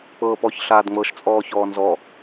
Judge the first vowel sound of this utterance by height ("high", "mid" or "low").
mid